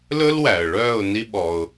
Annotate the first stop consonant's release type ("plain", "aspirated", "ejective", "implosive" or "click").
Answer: implosive